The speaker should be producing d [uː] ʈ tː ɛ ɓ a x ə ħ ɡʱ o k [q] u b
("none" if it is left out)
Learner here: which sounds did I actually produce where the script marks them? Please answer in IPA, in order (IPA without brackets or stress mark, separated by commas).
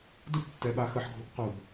u, q